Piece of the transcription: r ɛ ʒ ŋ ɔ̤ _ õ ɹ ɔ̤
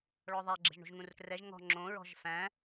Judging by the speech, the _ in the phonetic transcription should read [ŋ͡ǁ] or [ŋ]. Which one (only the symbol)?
ŋ͡ǁ